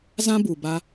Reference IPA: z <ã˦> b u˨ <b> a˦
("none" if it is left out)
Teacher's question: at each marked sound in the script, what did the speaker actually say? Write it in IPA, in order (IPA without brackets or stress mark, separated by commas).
ã˦, b